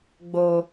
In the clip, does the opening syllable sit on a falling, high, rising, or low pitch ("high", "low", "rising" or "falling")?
low